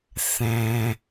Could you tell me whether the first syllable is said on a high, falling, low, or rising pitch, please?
low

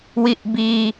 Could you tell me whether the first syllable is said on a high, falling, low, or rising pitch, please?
low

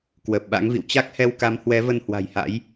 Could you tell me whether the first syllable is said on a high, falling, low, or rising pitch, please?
low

